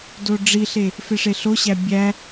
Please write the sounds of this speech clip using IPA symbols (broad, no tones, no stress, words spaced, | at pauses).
doɖ͡ʐiɬe | feʂeɬoɕæ bʲæ